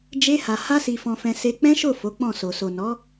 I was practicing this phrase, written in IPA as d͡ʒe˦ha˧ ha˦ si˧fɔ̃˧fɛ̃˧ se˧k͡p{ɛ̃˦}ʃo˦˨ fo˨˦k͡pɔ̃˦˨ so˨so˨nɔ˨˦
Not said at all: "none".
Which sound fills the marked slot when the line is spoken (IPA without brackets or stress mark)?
ɛ̃˦